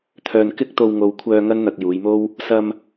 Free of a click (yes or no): yes